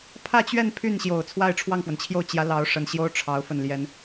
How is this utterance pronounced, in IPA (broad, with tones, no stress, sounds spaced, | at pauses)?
pʰ ä˥˧ t͡ɕ ɥ ɛ˥˧ n pʰ y˥˩ n ɕ j o˨˩ ʊ̯ t͡sʰ w a˥˧ ɪ̯ ʈ͡ʂʰ w ɑ˥˩ ŋ f w ə˩ n t͡ɕʰ j o˥˩ ʊ̯ t͡ɕ j ä˧˥ l ɑ˧˥ ʊ̯ ʂ ə˨˩ n ɕ j o˥ ʊ̯ ʈ͡ʂʰ ɑ˧˥ ʊ̯ f ə˥˩ n l j ɛ˥ n